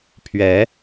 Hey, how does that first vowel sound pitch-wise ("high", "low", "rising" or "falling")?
rising